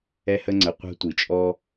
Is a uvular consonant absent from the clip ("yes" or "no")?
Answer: no